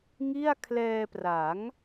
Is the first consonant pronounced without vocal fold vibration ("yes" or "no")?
no